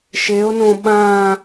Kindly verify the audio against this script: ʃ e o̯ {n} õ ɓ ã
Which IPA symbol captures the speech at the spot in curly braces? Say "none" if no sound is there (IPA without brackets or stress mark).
n